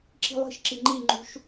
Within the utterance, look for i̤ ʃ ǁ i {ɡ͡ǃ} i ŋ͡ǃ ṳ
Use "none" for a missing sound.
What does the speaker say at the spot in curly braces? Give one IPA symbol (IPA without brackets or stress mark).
ŋ͡ǃ